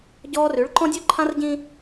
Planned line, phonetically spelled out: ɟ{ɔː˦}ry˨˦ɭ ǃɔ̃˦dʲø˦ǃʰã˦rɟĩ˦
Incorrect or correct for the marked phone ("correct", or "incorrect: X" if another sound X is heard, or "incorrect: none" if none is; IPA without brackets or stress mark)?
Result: correct